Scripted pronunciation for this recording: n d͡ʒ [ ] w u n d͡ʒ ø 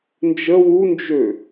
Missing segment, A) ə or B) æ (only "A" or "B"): A